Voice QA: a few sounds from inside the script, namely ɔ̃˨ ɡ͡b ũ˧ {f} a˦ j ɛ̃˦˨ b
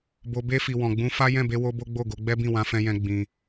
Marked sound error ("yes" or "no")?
no